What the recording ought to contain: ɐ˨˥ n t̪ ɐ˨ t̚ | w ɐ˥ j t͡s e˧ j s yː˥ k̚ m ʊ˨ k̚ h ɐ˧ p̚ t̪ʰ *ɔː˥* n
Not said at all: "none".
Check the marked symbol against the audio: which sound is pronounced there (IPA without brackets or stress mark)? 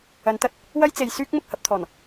ɔː˨˩